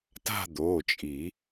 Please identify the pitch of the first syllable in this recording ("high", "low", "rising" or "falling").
falling